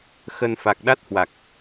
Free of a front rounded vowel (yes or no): yes